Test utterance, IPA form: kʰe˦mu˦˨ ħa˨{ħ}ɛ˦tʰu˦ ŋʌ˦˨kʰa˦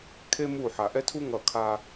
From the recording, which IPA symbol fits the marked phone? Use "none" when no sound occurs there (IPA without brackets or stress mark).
ʔ